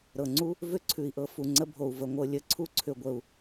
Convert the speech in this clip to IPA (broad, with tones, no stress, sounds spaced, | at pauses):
ɾ ɤ˩ ŋ͡ǀ u˥ | v ʏ˥ ǀʰ ʉ˩ i̯ ʔ ɤ˩ f u˩ ŋ͡ǀ ə˧ bʱ o˩ u̯ v ə˩ ŋʷ ɤ˧ lʲ ə˩ ǀʰ u˥ ǀʰ ʏ˩ ɡʷ ə˩ u̯